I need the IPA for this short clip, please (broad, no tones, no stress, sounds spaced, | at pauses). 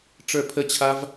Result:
ʈ͡ʂ ə˞ pʰ ə t͡ɕʰ a v